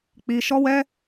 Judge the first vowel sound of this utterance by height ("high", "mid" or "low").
high